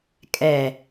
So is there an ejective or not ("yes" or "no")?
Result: yes